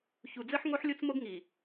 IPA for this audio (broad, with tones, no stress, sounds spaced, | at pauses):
ç u˨ d͡z ɘ˦ ħ ŋ o˦ ħ lʲ o˦ t͡s m o˦ ɡ ŋ i˨